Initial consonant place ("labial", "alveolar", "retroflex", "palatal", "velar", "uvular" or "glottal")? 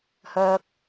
glottal